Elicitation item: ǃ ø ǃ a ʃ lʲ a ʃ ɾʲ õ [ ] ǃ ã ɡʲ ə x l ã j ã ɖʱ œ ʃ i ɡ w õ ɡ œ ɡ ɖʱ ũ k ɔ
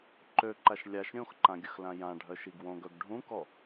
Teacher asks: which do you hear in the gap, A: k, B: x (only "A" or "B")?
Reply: B